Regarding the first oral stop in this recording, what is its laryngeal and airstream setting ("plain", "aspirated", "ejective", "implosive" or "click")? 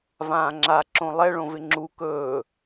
click